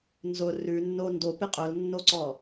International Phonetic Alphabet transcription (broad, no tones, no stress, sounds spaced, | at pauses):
n z ʊ r ʉ nː o n d o p ɪ qʼ ʊ l nː o ǀ ɔ